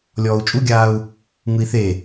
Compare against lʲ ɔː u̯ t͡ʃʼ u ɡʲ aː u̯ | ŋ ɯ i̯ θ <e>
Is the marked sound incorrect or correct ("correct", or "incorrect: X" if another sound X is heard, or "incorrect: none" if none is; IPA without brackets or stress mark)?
correct